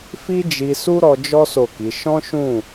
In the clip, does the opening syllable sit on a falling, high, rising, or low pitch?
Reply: high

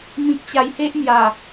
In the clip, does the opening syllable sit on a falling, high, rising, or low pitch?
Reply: low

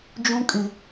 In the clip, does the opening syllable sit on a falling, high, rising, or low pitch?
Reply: high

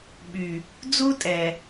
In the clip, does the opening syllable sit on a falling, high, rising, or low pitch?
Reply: low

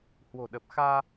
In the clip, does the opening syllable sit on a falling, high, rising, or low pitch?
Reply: low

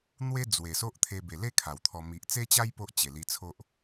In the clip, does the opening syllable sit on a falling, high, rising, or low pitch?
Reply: high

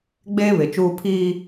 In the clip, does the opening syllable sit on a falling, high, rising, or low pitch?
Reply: high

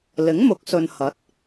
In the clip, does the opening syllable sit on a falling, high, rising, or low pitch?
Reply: rising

